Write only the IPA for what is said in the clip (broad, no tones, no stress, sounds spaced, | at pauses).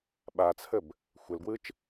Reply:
ɓ a t͡sʰ ə b | xʷ ɘ l ɡ w ɯ t͡ʃ